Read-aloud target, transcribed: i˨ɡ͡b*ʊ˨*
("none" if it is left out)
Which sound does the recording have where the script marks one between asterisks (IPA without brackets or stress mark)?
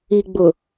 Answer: ʊ˨